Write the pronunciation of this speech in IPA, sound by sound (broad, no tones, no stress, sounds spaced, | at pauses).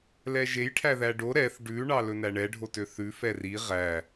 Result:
l ɛ ʒ e j ʈʰ æ ð æ ɖ o ɾ ɛ θ ɖ ʉ ɳ ɑ l ɵ n æ ɳ ɛ ɖʱ o t ø θ ʉ f ɛ r i ʁ æ